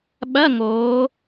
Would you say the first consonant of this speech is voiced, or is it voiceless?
voiced